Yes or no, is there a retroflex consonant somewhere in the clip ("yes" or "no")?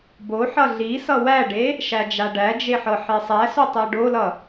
yes